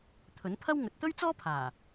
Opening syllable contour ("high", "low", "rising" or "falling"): rising